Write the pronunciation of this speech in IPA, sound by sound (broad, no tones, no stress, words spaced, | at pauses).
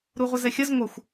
ɾuʁʷəzɛxʲɐz ŋʷɐxʷ